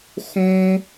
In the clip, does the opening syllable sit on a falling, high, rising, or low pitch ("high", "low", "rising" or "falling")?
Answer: high